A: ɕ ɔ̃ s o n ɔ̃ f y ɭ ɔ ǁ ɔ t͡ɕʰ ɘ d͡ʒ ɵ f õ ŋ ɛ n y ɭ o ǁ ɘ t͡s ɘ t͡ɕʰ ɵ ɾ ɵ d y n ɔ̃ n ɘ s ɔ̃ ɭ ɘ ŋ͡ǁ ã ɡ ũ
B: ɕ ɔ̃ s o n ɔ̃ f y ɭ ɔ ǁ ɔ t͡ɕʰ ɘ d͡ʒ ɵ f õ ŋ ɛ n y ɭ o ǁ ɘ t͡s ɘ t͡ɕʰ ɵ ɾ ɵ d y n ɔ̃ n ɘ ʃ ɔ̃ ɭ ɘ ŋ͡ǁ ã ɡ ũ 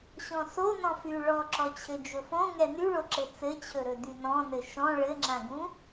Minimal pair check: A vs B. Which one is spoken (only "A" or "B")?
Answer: B